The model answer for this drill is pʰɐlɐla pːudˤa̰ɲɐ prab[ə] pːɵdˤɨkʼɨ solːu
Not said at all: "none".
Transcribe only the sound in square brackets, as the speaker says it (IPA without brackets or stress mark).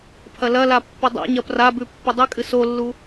ʉ